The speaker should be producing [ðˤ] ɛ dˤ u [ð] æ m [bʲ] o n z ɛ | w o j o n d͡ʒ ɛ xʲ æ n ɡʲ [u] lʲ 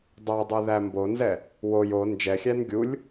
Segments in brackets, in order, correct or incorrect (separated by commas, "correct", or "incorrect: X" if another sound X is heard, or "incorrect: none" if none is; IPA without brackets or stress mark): incorrect: dˤ, correct, incorrect: b, correct